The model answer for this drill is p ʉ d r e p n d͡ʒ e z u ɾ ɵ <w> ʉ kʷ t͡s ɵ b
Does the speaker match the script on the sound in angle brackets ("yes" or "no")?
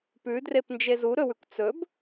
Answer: yes